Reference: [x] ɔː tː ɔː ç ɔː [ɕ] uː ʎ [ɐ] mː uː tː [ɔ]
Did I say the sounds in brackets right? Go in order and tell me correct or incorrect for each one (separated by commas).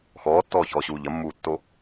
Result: correct, correct, correct, incorrect